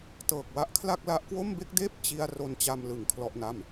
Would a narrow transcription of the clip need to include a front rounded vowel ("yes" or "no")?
no